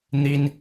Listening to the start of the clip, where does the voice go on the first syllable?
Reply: high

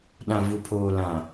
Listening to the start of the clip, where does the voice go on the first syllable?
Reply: low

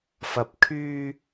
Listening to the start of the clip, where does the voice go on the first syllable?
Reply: low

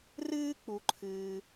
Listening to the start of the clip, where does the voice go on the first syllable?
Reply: high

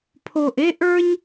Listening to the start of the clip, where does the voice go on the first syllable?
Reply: low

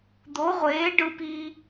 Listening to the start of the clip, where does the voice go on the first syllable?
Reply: rising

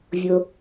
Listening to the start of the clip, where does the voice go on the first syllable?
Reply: low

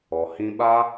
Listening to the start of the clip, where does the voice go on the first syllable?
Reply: low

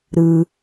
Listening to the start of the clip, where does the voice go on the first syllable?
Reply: low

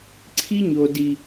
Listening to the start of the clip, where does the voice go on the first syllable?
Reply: high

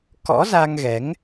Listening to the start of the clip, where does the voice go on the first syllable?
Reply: rising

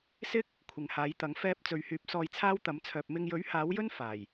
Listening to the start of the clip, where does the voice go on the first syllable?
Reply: high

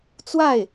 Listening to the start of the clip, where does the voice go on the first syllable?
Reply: falling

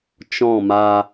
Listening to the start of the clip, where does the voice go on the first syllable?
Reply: falling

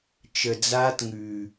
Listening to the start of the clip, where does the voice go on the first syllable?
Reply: low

